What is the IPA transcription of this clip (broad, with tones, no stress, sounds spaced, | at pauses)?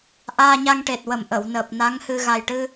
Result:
ʔ aː˧ ɲ a˧ ŋ ʈ e˨˩ t̚ w ə˨˩ m ʔ ə˨˩˨ w n əː˨˩ p̚ n a˧˥ ŋ h ɨ˧ ɣ a˨˩ j ʈ ɨ˧